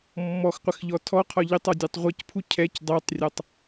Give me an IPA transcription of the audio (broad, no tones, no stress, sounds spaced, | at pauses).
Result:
mː ɔ x qʷ ɪ x ʎ ɔ tʰ ɔ qʰ ɒ ʎ ɪ tˤ ɒ dʲ ɛ tˤ ʁʷ i c pʰ u cʰ ɛ c dˤ ɛ tˤ rʲ ɒ tˤ